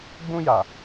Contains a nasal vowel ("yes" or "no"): yes